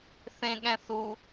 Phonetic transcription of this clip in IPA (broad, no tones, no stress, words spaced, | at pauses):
θẽɠɛ̃θu